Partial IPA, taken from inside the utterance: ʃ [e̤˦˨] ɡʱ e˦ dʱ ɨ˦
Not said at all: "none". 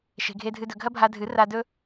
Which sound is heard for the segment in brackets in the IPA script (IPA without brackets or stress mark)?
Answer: e̤˧